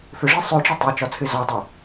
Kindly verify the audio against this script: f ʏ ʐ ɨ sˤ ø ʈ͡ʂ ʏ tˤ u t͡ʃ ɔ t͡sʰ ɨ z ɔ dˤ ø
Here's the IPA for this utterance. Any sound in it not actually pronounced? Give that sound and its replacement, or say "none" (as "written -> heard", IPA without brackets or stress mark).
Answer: u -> ø